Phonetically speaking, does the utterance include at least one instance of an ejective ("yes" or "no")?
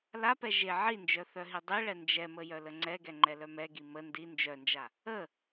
no